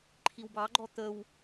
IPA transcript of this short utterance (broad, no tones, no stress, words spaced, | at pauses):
ǃʰiwbɑɡ͡ǃɔ t̪əw